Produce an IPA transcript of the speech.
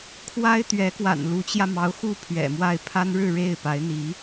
kʰwa˥ɪ̯t̪ɥɛ˧˥kwa̰˨˩n lu˧˥t͡ɕjä˧mɑ˧˥ʊ̯xu˥˩ pʰɥɛ̰˨˩mwa˥˩ɪ̯ pʰa˥nɻɻ̩˥˧ ɻe˥˩ɪ̯pa˧˥ɪ̯ n̪i˧˥

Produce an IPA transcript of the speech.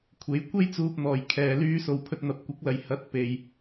kʷʰe˨˧jkʷe˥jt͡suː˧p̚n̪ɔː˨j kʰɛː˨lyː˧so˨w pʰɵ˧t̚n̪ɐ˨˥p̚kʷɐ˨˥k̚lɐ˨˧j hɐ˨˥t̚ pe˧j

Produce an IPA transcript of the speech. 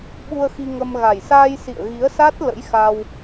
ɓu˧ə̯xi˧ŋə˧m ɣa˨˩jsaː˧j sḭ˧˨ə̯ɣi˨˦ə̯sa˦˥t̚ lə̰˧˥jxa˧w

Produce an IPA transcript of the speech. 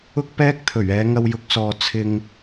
ʊ˥k̚pɛː˥k̚ t̪ʰɵ˨˩ɥɛː˨˧ ŋɐ˧wjʊ˨˥k̚sɔː˨ t͡sʰɪ˧ŋ

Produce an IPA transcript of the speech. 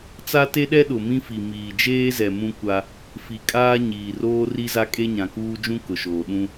t͡sa˦te˦ɗɛ˦ɗʊ˨ mĩ˦fi˨ miː˨d͡ʒeː˦zɛ˨ mũ˦kʷa˦ | fi˨kʼaː˦ ɲiː˨roː˦ri˦za˦ kʼe˦ɲã˨kuː˦d͡ʒũ˦ kʊ˨ʃoː˨ɗũ˦

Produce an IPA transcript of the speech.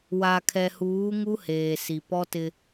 wa˨kʰɛ˨huː˨˦ ŋu˦heː˨ si˨ pɔ˦tɪ˦

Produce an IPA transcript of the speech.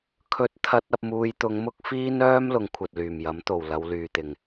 kʰɵ˥t̚t̪ʰɐ˥t̚ ɐ˧p̚ muː˧jt̪ʊ˧ŋmʊ˥k̚ fiː˥nœː˥m lʊ˨˧ŋkʷʰɐ˨t̚lyː˨˩mjɐ˨˥m t̪o˨˩w lɐ˨˧wlyː˨t̪ɪ˨˩ŋ

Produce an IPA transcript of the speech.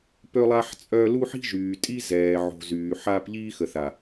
pø˦lˠa˦ħ t͡sʼœ˦ lu˦ħi̤˦ʒyː˨tʼi˦ zɛː˨ʕo̤˨ zyː˨ħaː˦p ʎiː˦xə˨θa˨

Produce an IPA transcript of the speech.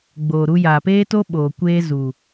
ɡ͡boː˨ ɾu˧jaː˨peː˦to˦ ɓoː˨ kʷeː˦zu˨

